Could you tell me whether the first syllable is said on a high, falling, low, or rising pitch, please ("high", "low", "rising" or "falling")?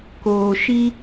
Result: low